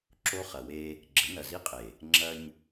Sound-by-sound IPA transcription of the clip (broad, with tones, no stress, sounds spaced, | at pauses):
ǁ o˦ χ ɐ˨ w e˦ | ɡ͡ǁ ɘ˨˦ n ɐ˨ z i˦ qʼ e˨ | ŋ͡ǁ ɐ˦ ɲ